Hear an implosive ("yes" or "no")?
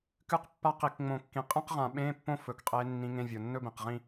yes